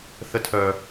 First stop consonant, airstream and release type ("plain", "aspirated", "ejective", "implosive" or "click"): aspirated